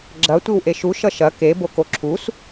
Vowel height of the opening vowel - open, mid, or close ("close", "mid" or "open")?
open